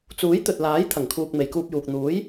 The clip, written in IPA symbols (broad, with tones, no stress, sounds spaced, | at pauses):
t͡s uː˨˥ j t̪ ɵ˨ t̚ l aː˨˥ j t̪ʰ ɐ˨˩ ŋ kʰ uː˨ k̚ m e˨ j k uː˧ p̚ j uː˨ k̚ n̪ uː˨˥ j